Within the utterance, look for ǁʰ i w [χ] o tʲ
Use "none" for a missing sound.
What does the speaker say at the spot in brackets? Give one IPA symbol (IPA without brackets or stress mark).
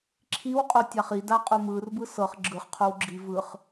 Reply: qʼ